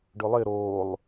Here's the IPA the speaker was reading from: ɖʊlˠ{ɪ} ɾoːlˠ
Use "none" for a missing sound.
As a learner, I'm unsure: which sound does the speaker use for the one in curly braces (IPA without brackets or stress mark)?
ɪ